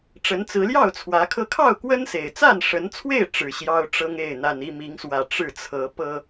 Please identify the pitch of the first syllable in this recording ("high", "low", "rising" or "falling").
rising